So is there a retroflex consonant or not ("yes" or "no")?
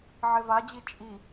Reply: no